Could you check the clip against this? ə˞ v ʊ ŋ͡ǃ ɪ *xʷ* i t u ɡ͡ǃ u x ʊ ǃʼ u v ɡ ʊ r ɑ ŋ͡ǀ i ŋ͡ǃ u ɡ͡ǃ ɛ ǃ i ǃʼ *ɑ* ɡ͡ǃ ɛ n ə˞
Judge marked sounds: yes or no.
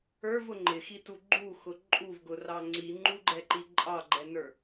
no, yes

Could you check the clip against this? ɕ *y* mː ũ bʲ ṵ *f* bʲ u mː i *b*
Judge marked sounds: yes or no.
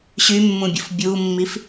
yes, yes, no

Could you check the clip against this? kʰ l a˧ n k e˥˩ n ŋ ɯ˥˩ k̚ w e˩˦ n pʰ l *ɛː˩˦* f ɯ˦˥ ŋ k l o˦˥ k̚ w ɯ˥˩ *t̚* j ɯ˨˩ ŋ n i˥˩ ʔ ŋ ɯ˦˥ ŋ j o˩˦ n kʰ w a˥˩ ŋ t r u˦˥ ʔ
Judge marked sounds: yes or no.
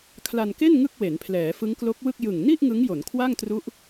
yes, no

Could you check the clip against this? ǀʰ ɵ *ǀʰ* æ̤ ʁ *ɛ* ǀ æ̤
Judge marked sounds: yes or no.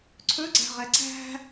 no, yes

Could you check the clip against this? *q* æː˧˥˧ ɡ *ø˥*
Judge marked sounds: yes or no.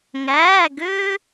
no, yes

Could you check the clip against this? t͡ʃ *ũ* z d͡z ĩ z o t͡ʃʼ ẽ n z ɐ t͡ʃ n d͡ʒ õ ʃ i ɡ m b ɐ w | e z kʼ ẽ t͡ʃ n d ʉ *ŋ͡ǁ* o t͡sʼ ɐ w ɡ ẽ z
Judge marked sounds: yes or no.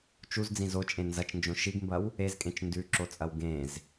no, no

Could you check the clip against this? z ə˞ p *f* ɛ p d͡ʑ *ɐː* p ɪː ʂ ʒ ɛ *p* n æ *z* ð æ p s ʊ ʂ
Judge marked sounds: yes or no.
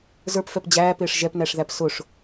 yes, no, yes, no

